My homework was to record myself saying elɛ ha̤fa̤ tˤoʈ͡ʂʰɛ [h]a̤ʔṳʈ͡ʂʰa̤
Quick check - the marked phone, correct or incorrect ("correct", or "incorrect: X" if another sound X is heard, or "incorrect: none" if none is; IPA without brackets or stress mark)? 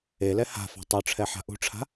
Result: incorrect: ħ